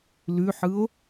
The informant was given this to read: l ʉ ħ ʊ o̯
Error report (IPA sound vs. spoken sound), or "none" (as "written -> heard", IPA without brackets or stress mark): ʊ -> ɯ